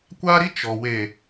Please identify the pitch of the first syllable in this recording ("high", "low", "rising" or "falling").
high